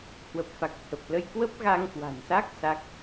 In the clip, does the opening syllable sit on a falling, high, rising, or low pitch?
low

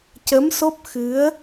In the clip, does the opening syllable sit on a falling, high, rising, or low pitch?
rising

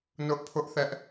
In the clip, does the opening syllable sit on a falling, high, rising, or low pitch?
high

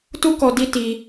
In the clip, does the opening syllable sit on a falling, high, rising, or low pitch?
high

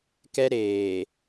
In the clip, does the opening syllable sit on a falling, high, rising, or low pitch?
high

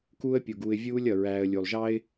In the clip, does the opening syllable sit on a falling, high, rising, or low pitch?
high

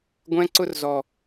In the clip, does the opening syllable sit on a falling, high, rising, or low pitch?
high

